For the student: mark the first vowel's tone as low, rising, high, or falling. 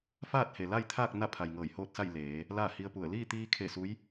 falling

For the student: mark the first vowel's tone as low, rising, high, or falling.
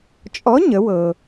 rising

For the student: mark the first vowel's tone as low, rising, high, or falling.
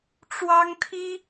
high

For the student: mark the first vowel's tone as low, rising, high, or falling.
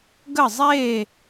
falling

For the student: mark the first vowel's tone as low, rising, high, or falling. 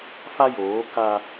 high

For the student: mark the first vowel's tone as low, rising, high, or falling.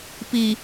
low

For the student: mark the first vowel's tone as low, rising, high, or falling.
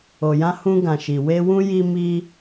low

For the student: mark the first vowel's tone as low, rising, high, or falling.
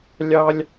high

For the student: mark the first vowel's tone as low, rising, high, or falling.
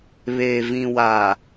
low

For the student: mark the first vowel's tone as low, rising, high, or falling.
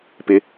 high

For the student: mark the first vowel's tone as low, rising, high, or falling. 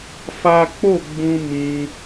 high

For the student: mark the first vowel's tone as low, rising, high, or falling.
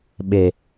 low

